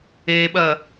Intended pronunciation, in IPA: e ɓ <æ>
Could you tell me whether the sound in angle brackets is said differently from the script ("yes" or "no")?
yes